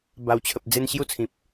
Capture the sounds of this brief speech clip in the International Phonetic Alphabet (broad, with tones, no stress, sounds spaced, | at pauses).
b a˨˩ w t͡ɕʰ ə˨ p̚ d͡z e˧ n ɕ j u˦ t͡sʰ ĩ˨ p̚